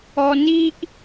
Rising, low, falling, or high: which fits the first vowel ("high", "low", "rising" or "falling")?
low